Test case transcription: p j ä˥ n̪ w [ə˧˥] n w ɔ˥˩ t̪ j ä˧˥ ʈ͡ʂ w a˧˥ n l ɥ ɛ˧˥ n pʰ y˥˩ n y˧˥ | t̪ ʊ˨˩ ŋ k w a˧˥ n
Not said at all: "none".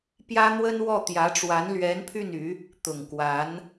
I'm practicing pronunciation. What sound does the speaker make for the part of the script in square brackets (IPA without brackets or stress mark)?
ə˥